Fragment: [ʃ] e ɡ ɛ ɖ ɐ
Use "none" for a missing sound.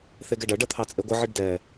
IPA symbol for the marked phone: θ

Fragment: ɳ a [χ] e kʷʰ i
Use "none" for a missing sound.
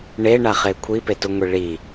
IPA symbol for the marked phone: χ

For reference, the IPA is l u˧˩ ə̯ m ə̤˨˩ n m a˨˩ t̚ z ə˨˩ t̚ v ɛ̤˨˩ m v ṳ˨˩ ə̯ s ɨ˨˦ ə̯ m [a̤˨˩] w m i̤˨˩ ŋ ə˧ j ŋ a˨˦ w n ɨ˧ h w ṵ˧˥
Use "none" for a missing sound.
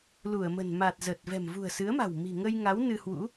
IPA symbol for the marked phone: a̤˨˩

